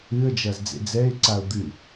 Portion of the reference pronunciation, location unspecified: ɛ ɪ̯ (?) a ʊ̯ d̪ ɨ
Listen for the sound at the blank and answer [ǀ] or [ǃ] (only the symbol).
ǀ